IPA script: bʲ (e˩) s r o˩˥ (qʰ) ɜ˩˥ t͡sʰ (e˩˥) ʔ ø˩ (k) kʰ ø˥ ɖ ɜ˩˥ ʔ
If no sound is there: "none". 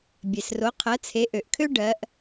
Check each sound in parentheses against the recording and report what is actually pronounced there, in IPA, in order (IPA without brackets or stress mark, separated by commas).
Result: e˩, qʰ, e˩˥, ʔ